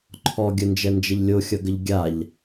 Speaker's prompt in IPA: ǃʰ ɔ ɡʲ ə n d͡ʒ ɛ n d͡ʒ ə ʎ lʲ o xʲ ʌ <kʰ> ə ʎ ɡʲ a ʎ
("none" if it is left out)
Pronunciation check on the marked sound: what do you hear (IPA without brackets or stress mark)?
ɡ